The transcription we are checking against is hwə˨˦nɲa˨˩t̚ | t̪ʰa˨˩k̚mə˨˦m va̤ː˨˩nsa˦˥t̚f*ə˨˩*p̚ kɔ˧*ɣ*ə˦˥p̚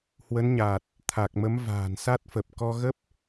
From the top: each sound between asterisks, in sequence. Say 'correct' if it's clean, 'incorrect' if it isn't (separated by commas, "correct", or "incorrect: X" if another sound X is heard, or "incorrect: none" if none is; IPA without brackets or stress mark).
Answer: correct, correct